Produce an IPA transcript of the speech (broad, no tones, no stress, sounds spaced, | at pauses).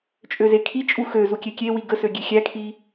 t͡ʃʼ ø z e kʰ i t͡ʃʼ u x ø z u kʲ e kʲ e w i ɡ ə s ø ɡʲ e xʲ æ kʰ i